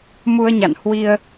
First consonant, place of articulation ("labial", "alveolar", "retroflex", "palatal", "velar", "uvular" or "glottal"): labial